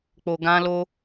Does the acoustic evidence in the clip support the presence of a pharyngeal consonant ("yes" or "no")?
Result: no